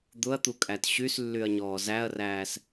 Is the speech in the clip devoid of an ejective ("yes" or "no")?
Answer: no